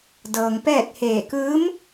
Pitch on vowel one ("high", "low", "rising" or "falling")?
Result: low